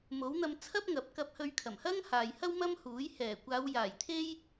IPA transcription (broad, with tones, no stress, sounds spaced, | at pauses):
m o˨˥ w n̪ ɐ˧ m t͡sʰ ɐ˥ p̚ ŋ ɐ˨˥ p̚ k ɐ˧ p̚ h ɵ˧ ɥ kʰ ɐ˨˩ m h ɐ˥ ŋ h aː˨ j h ɐ˥ w m ɐ˥ m h uː˨˥ j h ɛː˨˩ kʷ aː˨˧ w j aː˨˩ j t̪ʰ e˥ j